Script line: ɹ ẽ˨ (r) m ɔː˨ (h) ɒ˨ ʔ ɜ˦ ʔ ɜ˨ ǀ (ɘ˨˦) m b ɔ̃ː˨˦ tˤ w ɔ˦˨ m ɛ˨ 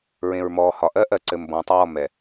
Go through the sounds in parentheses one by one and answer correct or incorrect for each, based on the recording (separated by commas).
incorrect, correct, incorrect